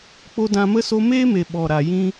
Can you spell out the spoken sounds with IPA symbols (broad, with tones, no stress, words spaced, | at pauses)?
k͡po˧dã˧mə˦ so˧meː˦me˨ ɓɔ˨ɾa˨ jĩ˧